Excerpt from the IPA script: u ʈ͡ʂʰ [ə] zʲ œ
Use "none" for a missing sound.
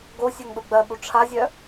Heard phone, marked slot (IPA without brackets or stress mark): a